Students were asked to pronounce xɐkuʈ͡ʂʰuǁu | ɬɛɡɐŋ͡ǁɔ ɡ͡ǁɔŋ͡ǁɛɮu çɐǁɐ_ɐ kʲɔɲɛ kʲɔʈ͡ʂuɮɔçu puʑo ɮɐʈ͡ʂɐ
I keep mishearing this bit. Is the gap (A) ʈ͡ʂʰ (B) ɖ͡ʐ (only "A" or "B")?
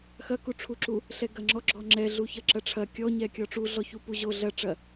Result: A